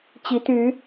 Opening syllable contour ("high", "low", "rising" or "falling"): rising